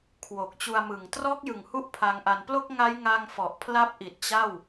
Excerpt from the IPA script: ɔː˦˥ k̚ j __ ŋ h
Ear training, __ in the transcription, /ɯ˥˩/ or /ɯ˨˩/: ɯ˨˩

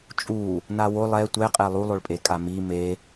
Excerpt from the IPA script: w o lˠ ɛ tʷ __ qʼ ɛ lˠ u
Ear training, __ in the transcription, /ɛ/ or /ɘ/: ɛ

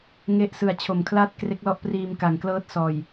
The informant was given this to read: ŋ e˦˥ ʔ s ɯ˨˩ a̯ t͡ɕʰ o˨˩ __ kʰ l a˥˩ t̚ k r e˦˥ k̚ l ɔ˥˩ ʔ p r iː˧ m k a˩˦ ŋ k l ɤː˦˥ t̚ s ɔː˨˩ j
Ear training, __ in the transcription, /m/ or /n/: m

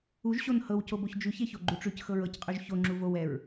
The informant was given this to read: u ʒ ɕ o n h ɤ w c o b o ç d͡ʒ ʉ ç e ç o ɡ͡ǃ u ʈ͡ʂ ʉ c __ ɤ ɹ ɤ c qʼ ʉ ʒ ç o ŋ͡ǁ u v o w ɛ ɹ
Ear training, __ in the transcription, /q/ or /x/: x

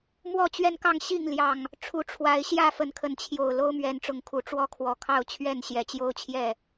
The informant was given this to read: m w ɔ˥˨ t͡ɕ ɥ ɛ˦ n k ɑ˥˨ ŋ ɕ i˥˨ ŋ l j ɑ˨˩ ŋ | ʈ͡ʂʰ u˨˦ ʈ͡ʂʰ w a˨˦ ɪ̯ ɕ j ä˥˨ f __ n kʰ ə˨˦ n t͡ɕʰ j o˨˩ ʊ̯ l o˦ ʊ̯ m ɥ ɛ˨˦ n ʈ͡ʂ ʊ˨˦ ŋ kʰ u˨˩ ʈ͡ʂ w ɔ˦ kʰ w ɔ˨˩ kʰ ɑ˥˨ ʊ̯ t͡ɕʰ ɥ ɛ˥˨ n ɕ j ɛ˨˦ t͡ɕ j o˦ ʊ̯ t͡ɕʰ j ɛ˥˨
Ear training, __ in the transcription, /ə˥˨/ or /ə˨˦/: ə˨˦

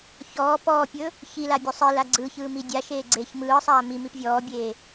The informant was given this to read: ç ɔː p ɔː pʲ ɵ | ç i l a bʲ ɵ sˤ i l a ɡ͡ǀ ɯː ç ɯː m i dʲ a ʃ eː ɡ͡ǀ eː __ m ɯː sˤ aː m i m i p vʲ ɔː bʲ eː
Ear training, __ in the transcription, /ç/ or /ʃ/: ç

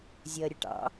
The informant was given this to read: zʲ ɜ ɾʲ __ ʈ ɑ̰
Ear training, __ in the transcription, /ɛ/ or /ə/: ə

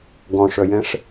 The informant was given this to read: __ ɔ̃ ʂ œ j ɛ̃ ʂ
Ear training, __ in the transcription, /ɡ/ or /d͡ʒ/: ɡ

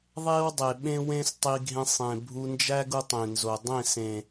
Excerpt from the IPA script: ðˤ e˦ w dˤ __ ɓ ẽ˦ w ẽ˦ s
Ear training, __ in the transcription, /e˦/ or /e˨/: e˨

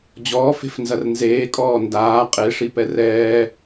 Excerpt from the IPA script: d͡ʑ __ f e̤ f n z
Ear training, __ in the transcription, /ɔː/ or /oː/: ɔː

